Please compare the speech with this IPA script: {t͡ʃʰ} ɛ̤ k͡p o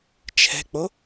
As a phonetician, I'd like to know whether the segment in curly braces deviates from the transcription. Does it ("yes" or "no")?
no